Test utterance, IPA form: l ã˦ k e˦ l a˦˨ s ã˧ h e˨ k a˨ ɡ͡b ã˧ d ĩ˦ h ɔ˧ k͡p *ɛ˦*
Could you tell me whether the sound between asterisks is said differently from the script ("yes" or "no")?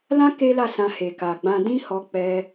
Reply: yes